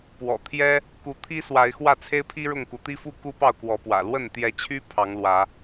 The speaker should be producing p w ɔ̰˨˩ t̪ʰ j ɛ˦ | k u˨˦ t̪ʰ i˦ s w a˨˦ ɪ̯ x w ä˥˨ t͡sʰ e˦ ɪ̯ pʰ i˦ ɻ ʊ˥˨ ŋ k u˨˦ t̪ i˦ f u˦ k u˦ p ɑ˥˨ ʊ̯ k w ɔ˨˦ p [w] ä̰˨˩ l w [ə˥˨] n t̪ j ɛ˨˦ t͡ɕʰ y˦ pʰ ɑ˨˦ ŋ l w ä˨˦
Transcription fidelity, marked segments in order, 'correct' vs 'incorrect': correct, correct

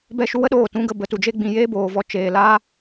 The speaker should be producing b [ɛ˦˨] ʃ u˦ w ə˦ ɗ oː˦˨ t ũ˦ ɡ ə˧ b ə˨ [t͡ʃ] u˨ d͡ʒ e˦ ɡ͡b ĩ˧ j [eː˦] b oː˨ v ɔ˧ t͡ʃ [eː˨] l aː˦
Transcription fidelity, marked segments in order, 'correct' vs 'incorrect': correct, incorrect: t, correct, correct

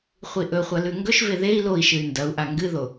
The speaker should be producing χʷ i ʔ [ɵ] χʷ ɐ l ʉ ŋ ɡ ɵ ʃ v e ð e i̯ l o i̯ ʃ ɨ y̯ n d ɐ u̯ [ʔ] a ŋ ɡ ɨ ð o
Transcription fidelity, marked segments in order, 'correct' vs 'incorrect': correct, correct

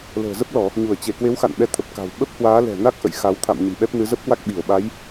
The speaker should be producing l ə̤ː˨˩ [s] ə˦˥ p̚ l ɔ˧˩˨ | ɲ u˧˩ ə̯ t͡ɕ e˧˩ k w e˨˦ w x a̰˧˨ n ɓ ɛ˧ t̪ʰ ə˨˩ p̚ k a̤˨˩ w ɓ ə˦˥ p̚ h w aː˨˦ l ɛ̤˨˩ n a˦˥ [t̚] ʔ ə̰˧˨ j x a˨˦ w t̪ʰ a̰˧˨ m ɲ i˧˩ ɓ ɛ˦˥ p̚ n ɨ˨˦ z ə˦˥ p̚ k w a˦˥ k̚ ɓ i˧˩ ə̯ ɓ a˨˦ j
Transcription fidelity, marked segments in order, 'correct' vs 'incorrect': incorrect: z, incorrect: k̚

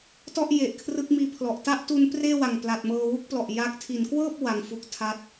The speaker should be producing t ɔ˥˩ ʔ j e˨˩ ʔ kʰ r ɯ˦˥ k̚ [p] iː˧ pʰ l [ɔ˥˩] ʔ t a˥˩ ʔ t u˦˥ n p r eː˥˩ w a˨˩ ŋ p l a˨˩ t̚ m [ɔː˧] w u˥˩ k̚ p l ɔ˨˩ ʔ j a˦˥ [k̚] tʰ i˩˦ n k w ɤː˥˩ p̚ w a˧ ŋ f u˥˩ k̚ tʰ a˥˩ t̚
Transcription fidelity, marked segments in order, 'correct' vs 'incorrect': incorrect: m, incorrect: ɔ˨˩, incorrect: ɤː˧, correct

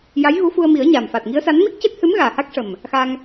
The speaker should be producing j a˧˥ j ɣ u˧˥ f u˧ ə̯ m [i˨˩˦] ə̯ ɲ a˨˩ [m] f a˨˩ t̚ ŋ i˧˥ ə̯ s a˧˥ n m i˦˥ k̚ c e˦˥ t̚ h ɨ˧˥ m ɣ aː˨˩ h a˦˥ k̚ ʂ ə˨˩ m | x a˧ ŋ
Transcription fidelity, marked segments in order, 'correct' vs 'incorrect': correct, correct

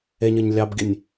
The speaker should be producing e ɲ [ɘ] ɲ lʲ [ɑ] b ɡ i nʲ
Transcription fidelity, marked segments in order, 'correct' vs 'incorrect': correct, correct

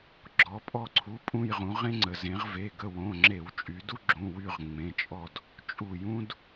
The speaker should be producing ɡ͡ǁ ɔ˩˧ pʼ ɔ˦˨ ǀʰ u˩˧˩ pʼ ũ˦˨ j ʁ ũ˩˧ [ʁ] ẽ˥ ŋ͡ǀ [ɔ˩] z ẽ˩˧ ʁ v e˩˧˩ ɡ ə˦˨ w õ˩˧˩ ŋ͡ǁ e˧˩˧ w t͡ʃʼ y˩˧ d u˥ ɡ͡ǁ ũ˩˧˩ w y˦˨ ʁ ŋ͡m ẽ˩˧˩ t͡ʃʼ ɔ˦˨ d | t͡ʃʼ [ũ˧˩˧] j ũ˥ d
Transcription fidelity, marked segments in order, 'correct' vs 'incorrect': correct, incorrect: ə˩, incorrect: u˧˩˧

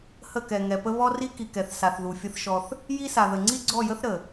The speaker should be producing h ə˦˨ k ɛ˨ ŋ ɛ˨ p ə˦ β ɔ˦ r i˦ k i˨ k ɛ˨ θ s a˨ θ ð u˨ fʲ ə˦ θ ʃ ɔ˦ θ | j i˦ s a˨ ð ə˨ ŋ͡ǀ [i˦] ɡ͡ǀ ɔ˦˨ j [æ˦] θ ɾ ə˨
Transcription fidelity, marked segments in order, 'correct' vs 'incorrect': correct, incorrect: ə˦

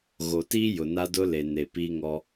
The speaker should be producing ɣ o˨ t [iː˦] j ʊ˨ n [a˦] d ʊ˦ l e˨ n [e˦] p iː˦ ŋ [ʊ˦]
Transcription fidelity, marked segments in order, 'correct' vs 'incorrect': correct, correct, incorrect: e˨, incorrect: ɔ˦

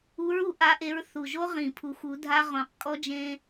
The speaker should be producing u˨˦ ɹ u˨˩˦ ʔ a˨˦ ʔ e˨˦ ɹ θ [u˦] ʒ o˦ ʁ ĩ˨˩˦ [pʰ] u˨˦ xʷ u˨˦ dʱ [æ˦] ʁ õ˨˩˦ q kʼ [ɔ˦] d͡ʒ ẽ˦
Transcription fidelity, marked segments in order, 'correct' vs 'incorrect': incorrect: u˨˩, correct, incorrect: a˦, correct

